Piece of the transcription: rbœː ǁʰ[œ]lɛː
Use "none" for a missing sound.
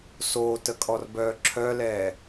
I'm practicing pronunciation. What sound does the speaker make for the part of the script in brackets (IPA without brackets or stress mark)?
œ